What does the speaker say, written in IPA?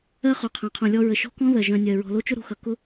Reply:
ɜ˥ χ ʊ˨ qʰ ã˨ qʰ õ˨ lʲ ɔ˦ ɹ ə˨ ʃ ɔ̤˥ k ɔ̃˥ ð ɜ˩ ʒ œ̃˨ nʲ ɜ˩ ɹ ɔ̤˨ l o˥ t͡ʃ ʊ˥ ɾ o̤˨ x ʌ˨ k ʊ˥

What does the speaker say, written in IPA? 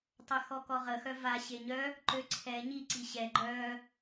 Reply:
tˤ œ x ɔ k ɔ ʁ ə x œ v a ɕ e ɲ œ | ǃ ø ǀʰ ɛ ɲ i ǀ i ɕ ɛ ɡ͡ǃ œ

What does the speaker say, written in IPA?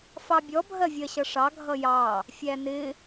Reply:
f ɑ bʲ ɔ bʱ ɜ vʲ ɜ ɕ ʌ ʂ ɑ ɡʱ ʌ j ɑ | fʲ æ n ɪ

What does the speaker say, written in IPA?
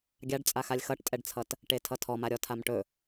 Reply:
ɡʲ a ɖ t͡sʼ a x a lʲ x ʌ ʈ tʼ ɛ ɖ t͡sʰ ʌ t | ʈ e tʰ ʌ tʰ ɔ m a ɾʲ ɔ tʰ a m ʈ ɵ

